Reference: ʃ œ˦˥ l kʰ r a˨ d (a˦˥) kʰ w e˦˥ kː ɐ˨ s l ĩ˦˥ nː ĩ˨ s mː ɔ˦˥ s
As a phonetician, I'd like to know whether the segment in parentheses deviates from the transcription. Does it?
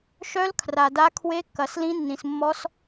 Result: no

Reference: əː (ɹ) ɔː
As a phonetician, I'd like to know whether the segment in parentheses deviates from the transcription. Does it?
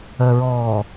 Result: no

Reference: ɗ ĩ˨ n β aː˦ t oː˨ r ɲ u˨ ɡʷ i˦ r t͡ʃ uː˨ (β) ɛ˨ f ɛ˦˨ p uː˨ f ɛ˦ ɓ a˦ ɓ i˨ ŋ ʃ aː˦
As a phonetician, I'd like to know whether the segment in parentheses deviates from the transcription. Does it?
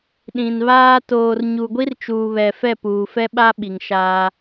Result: no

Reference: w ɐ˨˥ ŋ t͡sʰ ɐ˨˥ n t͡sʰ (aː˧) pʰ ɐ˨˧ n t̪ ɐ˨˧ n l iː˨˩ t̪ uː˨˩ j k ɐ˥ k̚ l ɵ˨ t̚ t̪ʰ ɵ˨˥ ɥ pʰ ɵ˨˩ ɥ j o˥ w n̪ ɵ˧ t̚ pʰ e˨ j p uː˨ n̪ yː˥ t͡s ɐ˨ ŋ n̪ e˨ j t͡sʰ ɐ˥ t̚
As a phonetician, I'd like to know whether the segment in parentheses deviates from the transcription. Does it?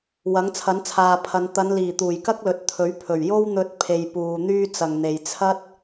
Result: yes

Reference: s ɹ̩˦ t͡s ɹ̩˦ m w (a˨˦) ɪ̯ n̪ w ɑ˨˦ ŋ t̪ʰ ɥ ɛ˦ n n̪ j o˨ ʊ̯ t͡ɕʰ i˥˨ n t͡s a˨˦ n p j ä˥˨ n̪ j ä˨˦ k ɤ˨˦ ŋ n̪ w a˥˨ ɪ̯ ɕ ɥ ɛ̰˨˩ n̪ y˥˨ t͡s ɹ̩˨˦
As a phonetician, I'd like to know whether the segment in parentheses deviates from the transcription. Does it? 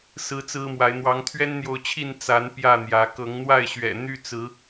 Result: no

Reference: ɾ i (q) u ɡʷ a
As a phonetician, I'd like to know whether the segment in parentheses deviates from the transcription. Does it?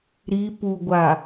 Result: yes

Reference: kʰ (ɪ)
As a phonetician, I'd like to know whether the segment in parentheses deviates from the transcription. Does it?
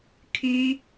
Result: yes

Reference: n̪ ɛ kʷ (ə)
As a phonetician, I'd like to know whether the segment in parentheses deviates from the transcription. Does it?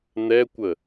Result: no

